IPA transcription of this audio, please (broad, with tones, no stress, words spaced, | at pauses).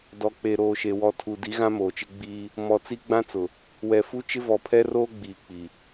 dɔ˨k͡pe˨ɾoː˨ʃe˨ wɔ˨tʰu˨ di˨˦ɣã˦moː˨t͡ʃɪ˦ ɡ͡biː˦ | mɔ˨t͡si˦ɡ͡bã˦t͡sʊ˨ | wɛ˨fu˦ t͡ʃɪ˦vɔ˨pʰɛ˦roː˦ ɡ͡biː˨k͡pi˨